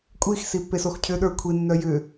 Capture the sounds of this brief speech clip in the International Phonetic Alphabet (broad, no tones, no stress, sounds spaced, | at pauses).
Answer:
kʷʼ i x s i pː e s o x cʰ ʏ ɗ ə˞ kʷʰ i nː œ j ʏ